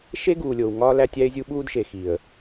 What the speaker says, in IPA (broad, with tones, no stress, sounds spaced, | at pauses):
ʃ e˦ ɡ uː˨ lʲ oː˨ w ŋ ɒː˦ l æ˦ tʲ æ˦ ɪ̯ zʲ u˦ ɓ uː˦ d ʃ e˨ x i˨ ə̯